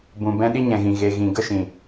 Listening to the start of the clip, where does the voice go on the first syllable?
low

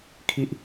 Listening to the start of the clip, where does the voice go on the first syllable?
low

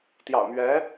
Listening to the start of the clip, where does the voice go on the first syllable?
low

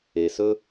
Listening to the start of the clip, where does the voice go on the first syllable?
low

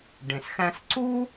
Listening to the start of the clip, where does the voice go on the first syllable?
low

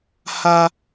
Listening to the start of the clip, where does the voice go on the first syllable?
low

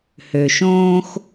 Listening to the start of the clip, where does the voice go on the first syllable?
low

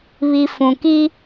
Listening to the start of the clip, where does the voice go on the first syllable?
low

